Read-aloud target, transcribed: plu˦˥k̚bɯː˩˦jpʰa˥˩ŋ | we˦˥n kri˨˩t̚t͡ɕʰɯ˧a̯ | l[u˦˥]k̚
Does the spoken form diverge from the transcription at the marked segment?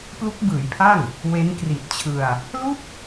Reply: yes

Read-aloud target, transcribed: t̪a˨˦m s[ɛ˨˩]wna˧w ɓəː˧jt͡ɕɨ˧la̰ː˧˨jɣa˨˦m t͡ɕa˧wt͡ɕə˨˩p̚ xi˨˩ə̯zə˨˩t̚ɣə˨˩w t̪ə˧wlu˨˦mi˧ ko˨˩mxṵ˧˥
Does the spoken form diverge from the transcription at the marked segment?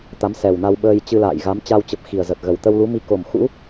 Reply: no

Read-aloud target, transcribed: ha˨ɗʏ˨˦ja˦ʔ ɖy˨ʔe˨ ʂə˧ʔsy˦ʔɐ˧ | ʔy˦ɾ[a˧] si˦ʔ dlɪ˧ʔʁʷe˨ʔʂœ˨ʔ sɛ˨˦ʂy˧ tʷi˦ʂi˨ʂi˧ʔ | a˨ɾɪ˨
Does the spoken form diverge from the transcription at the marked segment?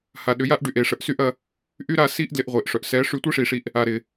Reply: no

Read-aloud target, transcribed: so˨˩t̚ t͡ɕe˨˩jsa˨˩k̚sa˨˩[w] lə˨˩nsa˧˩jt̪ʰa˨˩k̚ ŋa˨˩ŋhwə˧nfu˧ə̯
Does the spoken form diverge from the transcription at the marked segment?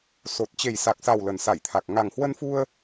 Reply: no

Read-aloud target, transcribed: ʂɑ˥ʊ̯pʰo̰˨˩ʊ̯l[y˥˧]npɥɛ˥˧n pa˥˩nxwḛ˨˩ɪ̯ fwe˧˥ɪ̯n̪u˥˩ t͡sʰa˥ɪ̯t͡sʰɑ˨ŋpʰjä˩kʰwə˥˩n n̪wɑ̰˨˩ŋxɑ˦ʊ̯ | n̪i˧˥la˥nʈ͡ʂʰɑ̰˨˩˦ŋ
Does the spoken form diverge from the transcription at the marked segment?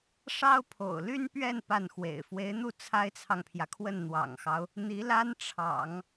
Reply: yes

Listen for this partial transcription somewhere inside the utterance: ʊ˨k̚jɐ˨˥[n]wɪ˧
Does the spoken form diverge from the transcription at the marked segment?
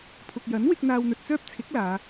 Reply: no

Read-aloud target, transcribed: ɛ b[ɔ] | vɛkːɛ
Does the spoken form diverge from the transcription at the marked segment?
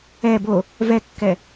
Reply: yes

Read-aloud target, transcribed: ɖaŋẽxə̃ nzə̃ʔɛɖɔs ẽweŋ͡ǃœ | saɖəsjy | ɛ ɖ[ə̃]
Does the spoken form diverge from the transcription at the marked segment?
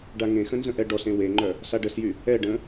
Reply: no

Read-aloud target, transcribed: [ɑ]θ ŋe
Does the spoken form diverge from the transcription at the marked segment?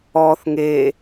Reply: yes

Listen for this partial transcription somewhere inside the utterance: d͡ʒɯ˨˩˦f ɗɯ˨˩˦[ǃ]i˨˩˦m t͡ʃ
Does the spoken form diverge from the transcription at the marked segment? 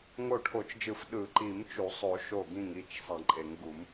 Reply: no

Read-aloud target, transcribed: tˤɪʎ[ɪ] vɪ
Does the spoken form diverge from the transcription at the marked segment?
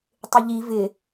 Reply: yes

